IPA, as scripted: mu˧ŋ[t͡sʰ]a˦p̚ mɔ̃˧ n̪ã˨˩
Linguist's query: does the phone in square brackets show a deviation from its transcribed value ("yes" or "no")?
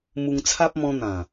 no